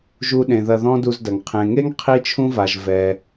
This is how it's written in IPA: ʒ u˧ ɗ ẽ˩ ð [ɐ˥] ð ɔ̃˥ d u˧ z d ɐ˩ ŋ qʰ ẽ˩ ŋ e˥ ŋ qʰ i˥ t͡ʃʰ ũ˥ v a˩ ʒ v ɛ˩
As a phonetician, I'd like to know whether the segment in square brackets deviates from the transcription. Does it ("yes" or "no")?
yes